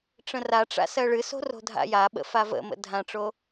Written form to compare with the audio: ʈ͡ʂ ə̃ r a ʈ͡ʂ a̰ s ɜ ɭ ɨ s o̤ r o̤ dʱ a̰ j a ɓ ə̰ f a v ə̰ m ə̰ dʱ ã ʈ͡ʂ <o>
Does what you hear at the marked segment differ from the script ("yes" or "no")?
no